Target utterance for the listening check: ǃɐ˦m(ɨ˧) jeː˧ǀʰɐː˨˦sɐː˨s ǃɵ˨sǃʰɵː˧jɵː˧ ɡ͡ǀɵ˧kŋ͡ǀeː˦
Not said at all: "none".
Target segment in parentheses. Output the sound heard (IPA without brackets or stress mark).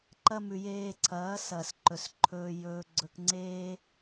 ʉ˧